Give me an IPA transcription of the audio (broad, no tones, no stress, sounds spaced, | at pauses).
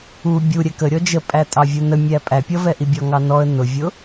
u bʲ u ɾʲ ɛ k ə ɾʲ ɔ d͡ʒ ə pʼ æ tʼ ɑ vʲ u n ə mʲ æ pʼ æ pʲ ʌ v ɛ ʔ i bʲ ɔ ŋ ɑ n ɔ ə̯ n ʊ vʲ ʊ